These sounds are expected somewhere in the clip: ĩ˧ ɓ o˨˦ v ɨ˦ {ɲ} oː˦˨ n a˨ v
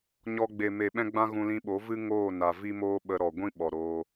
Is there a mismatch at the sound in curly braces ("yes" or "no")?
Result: yes